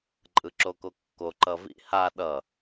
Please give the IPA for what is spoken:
ǃʼ ɯ ǁ o k o kː o ǃ ʌ v ḭ h a ɗ ʌ

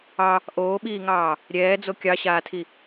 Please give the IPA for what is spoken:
ɑ | ʔ oː ɓ iː ŋ ɑː | ɾʲ ɛː d͡z o kʲ ɑ ɕ aː tʰ i

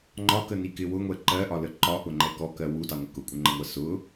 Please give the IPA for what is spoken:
ŋ͡ǃ ɒ k ə n i k ɪ w ʊ ŋʷ ɛ ǃ ɜ ʔ ɒ l ə ǃ ɒ ʔ ʊ ŋ͡ǃ ɛ k ɔ k ɜ w u d ɑ ŋʷ ɪ k ʊ kʷʼ ɪ ŋ͡ǃ ə ŋʷ ɜ s ʊ

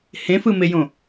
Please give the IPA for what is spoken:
h ẽ f ɯ m e j õ

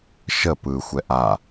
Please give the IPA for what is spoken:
ʃ ə p ɯ xʷ ɛ ʔ a

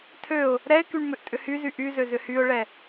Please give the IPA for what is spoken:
tʰ ø ʊ̯ | ɾ ɛ ɪ̯ k y ɳ m ʏ ʔ tʼ ʏ h y z y ʔ y z ø z ʏ h y ʊ̯ ɭ ɛ

